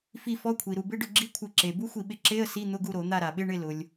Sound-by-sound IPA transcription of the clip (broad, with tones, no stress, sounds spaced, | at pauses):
f i˦˨ f ɔ˧˥˧ kʷʰ i˩ ɾ u˩ b ɪ˧˥˧ ɖ ʊ˦˨ ɡ͡ǁ i˧˥˧ kʷʰ ɪ˧˩˧ ǁ e˩ b u˧˥˧ xʷ i˩ ɓ ɪ˦˨ ǁ e˧˥˧ ə̯ s i˧˥˧ n̪ ʊ˧˥˧ ɡ u˦˨ ɾ o˧˩˧ n̪ a˦˨ ɾ a˩ ɓ ɪ˧˥˧ ɳ ɪ˦˨ l ʊ˩ lʲ